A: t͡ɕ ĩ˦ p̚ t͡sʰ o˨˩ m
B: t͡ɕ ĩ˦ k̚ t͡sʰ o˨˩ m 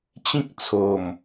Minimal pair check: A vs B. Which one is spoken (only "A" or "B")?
B